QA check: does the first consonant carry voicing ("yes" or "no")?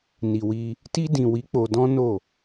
yes